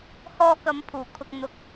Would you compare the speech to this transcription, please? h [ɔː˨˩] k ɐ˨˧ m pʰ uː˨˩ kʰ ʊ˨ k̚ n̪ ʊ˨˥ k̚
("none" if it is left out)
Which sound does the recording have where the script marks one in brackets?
ɔː˧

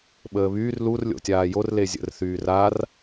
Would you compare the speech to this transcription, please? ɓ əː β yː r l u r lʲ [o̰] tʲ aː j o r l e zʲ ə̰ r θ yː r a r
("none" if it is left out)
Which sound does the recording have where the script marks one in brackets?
o̰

